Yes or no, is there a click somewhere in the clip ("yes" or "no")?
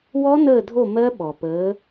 no